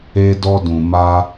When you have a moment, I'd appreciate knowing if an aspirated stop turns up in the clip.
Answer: no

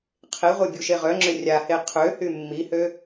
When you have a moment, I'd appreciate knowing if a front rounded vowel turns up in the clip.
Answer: yes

